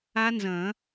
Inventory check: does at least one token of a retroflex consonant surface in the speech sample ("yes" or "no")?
no